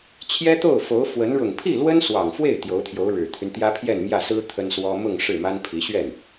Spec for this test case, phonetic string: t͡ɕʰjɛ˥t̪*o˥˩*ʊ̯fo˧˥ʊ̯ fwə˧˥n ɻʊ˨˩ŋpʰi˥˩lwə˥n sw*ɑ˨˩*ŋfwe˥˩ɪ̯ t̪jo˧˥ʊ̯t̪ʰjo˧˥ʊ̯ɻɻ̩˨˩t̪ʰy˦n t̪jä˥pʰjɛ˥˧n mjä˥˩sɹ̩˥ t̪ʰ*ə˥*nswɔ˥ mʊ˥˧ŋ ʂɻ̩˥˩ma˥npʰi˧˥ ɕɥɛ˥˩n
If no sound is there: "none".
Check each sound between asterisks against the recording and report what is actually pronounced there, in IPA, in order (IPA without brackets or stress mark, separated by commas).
o˥˩, ɑ˨˩, ə˥